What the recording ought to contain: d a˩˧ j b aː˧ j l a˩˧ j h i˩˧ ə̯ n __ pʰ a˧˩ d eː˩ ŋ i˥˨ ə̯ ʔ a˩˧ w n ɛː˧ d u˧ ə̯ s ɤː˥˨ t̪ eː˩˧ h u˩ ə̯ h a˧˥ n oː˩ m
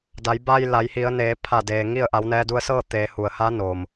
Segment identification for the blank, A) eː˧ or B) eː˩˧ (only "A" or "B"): B